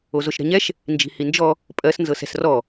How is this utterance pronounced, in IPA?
o z o ʃ ɾ ɛ̤ ɲ ɛ ʃ | n d͡ʒ i̤ h i n d͡ʒ ɔ | pʼ ɜ s n z ɤ s ɛ̤ s r ɔ

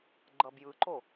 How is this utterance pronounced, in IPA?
ɡ͡ǃ ʌ b j ɯ ǃ o

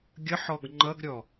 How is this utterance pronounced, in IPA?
ɡʲ ə ħ ɔ ɡ ŋ͡ǃ ʌ ɡ ɾʲ ɔ

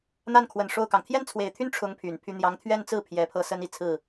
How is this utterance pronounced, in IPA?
n̪ a˥˩ n kʰ w ə˨˩ n ʂ o˥˩ ʊ̯ k ɑ˩ ŋ t̪ʰ j ɛ˥˩ n t͡sʰ w e˨˩ ɪ̯ t̪ʰ y˥ n ʈ͡ʂʰ ʊ˧˥ ŋ pʰ y˨˩ n pʰ y˥ n̪ j ɑ˧˥ ŋ t̪ʰ ɥ ɛ˥˧ n t͡s ɹ̩˥˩ pʰ j ɛ˧˥ pʰ ɤ˥ s ə˥ n i˨˩ t͡sʰ ɹ̩˥˩

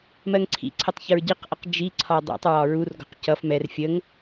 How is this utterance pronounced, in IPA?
m ɜ ŋ ǀʰ ḭ ǀʰ ə tˤ ç ə ɹ ɟ i q ʔ ə q d͡ʒ i ǀʰ ɒ dˤ ḭ tˤ ɹ ɒ ɹ u r ɡ ɔ̤ q c ʌ f m ɛ r fʲ ə ŋ

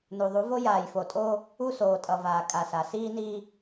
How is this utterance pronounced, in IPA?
n u˨ ðˤ u˨˦ v o˦ j aː˨ j f o˨ tʼ oː˦ | u˦ s oː˨ tʼ ʌ˨ v aː˨ kʼ a˨ s a˨ s iː˦ n iː˦

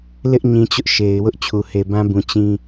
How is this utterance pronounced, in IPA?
l ɪ˦ ʔ ɲ ĩ˨ t͡ɕ ʊ˦ ʔ ʃ e˨ ɪ̯ w ʊ˦ ʔ t͡ɕʰ u˨ h e˨ b ã˦ b ũ˨ t͡ɕ ĩ˦

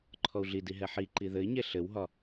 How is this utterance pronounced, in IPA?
ǃʰ ɔ u̯ ɮ i d i ɦ ɛ ħ i ǃ i ð ɘ i̯ ɲ e ɬ ɘ w ɦ ɒ

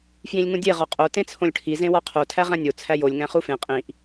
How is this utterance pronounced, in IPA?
f j ĩ lʲ ŋ ũ dʲ e ʁ ɒ qʼ o t ẽ t͡sʰ õ lʲ ʈʰ i z ẽ w ɒ qʰ o tʰ æ ʁ æ̃ nʲ o t͡sʰ æ j o lʲ ŋ æ̃ χ u f ẽ qʼ ĩ ʔ

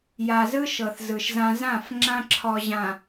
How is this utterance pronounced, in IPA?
j a˨ z ɯ˦ ʃ ɤ˨ θ z ɯ˨ ʃ z ã˦ z ã˦˨ f ŋ͡ǁ ã˦ ǁʰ ɔ˨ ʑ ã˨

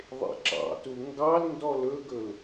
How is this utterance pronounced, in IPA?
ðˤ ḛ ǁ ɑ̰ t u ŋ ɡ ɑ l n d ɔ l ɵ ɡ ɵ l

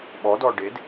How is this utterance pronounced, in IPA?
ɓ ɔ d ɔ ɖ e d

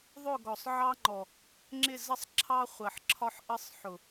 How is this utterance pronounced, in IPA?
ðˤ ʊ˦˨ ɡ ɔ˨ sˤ ʕ ɑ˦ ŋ͡ǃ ɔ˨ | ŋ͡ǁ ɪ˦˨ z ə˦ sˤ ǁʰ ɑ˦ χʷ ɜ˨ ħ ǁʰ ɒ˦ ħ ʔ ə˦ sˤ ħ ʊ˨

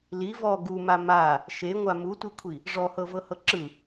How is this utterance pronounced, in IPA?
l i v ɔ ɡ u m a m a | ʃ e ŋʷ a m u tʷ i kʷʰ i | ʐ ɔ h ɤ v ɤ h ɤ ǁ ɯ

